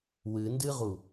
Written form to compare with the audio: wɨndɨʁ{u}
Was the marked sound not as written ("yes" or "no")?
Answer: no